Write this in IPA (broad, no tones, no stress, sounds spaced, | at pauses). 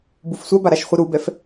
b u f sʷ a b a ɾ a ʃ χʷ i ɾ u b ɛ f